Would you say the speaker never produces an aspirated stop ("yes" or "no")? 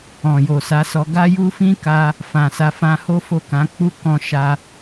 yes